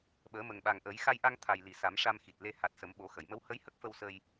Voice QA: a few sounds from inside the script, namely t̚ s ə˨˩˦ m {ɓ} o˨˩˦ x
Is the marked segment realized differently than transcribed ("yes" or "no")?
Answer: no